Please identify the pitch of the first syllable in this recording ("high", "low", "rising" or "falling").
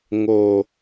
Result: low